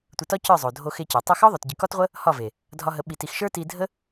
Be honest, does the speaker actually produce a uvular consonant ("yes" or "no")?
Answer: yes